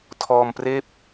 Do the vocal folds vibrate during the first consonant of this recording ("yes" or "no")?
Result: no